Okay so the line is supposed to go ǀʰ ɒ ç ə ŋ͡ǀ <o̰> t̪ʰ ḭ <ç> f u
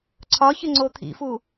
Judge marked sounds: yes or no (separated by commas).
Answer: no, no